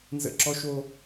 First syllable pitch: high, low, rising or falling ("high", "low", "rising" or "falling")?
high